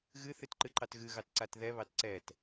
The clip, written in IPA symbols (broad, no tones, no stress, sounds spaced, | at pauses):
ɣ ɨ θ ɨ t ǃ ɨ ǃ ɑ t ɣ ɨ ɣ ɑ t ǀ a t ð ɛ β ɑ t ǀ ɛ t